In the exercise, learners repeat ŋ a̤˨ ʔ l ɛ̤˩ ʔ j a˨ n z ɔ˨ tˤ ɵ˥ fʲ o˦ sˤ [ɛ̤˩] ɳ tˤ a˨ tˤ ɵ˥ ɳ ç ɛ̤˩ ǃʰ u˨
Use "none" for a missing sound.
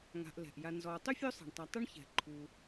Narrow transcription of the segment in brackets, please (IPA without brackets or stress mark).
ɛ̤˩